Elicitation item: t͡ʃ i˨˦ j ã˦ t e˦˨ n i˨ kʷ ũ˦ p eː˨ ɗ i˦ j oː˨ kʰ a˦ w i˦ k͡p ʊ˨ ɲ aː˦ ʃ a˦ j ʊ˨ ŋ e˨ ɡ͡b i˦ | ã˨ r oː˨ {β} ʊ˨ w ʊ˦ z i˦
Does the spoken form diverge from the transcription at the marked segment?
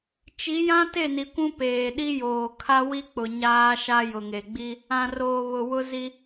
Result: no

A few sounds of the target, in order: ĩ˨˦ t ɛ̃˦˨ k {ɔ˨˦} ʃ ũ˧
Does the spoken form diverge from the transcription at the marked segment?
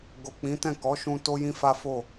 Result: no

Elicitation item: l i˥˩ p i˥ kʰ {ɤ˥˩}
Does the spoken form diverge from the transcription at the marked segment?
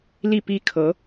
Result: yes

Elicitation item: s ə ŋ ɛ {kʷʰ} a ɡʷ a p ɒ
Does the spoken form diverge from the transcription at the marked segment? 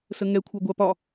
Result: no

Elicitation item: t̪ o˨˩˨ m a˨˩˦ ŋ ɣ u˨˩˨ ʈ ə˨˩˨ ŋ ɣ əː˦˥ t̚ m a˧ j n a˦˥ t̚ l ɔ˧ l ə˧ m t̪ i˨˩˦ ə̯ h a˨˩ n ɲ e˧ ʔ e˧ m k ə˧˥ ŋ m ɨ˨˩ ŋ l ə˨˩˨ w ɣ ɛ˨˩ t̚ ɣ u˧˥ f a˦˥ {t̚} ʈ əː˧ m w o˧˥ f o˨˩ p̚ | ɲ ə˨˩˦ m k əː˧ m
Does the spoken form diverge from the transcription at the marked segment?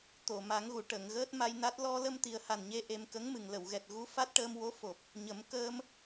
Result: no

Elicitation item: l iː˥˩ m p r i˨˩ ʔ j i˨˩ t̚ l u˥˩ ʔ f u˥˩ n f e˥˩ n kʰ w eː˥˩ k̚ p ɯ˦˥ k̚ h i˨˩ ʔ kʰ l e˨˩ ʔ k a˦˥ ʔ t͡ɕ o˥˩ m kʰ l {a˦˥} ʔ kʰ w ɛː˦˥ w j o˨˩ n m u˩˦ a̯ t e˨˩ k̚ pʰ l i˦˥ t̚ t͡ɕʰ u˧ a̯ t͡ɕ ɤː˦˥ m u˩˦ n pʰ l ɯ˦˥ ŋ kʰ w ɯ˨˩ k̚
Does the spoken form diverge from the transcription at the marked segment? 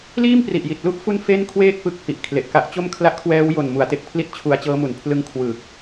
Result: yes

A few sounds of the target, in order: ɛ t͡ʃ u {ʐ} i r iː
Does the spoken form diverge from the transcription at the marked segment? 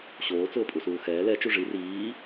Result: no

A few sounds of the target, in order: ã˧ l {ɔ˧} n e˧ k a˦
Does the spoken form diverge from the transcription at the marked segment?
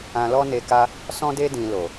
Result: yes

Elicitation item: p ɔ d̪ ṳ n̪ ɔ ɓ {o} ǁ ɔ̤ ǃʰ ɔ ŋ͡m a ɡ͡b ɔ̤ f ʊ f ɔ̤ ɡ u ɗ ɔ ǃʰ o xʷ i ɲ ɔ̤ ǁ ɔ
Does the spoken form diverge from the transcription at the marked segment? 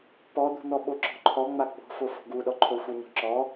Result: no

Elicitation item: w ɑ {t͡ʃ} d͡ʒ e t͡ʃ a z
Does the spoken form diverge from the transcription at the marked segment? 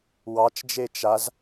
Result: no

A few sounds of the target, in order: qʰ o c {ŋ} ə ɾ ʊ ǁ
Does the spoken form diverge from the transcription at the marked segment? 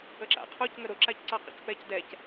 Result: no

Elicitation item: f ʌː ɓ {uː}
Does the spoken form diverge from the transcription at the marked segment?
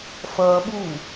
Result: no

